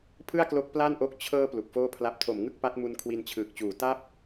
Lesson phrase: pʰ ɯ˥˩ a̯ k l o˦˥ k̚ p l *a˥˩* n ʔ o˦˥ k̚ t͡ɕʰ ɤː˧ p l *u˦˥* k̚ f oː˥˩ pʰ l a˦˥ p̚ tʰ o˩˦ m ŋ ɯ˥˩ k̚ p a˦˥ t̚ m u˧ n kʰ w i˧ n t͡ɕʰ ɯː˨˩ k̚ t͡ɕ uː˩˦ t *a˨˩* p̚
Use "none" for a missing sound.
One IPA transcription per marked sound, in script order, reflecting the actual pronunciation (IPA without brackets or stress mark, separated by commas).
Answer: a˥˩, u˨˩, a˥˩